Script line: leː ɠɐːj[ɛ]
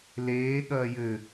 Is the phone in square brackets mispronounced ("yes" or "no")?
yes